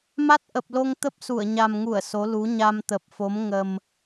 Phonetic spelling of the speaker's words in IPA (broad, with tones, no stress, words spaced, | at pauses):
ma˦˥t̚ʔə˨˩p̚lo˧ŋ t̪ə˦˥p̚su˧˩ə̯ɲa˨˩mŋu˧˩ə̯ so˨˦lu˨˦ ɲa˧mt̪ə˨˩p̚fo˨˦m ŋə˨˩m